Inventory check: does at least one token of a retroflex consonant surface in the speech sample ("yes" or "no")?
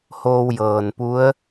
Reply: no